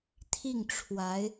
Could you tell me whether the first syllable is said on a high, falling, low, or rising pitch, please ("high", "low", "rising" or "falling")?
falling